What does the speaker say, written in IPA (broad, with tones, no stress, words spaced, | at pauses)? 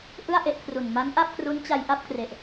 ʔɯ˥˩a̯ʔe˦˥ʔkʰru˨˩n ma˦˥n ʔa˥˩p̚kru˦˥nt͡ɕa˧j ʔa˥˩p̚kre˨˩ʔ